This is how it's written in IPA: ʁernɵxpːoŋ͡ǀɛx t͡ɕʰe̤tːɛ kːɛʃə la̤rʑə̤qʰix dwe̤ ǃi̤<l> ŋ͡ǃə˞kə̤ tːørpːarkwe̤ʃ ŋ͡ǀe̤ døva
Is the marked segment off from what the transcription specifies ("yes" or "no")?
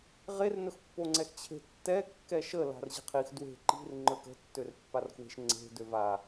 yes